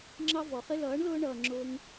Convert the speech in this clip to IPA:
ŋ͡ǁɑ˧ vɔ˨χɪ˦ lʌː˨˦ɳlʊː˧ɳʌː˨ ŋ͡ǁʊː˧ŋ

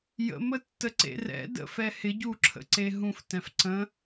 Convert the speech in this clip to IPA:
jə̰mətːə ǀḛrɛ̰ də̰fɛ hɪɟuǁʰə̰ǀe ɦũftɛ̃f ǀə̃

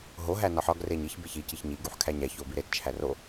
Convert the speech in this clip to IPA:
ɦoɦæ nɒħɒɡ reɲiç beçi ciçɲi ɡuħkʰæɲæ çobiɾet t͡ʃʰæro

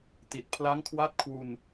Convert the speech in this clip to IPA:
ti˨˩t̚pʰla˦˥ŋkʰwa˦˥t̚kʰwu˧n

